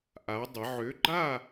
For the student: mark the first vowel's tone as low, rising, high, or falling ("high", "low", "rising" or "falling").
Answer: rising